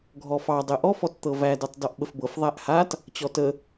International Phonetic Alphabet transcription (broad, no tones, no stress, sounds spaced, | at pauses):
ɡʱ ɔ f ɑ dˤ e ʔ ɔ f ɔ t t̪ ɤ v æ d ɤ tˤ d ɔ ʔ ɓ ə f b ɤ f ðˤ æ ʔ h a t | t͡ɕ ɔ t ə